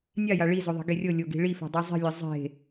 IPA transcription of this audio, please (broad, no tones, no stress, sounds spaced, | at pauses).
nʲ a j a ɭ i z o ðˤ e̤ ɡ e rʲ ɤ lʲ o ɡ i̤ ɭ i f e̤ dˤ i zˤ i̤ lʲ ɛ zˤ e̤